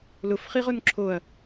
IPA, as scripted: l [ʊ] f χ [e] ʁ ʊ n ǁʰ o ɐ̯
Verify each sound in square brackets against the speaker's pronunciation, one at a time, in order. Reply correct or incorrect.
correct, incorrect: i

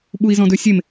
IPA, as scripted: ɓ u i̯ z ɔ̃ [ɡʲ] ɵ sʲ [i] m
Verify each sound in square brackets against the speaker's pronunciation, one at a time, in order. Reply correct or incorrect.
incorrect: d, incorrect: e

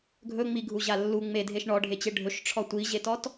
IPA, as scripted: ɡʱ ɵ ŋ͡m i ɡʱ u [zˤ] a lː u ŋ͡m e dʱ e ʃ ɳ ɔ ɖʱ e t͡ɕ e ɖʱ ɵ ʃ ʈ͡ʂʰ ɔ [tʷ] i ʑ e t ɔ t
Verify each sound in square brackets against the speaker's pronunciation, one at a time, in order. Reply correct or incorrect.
incorrect: ʑ, correct

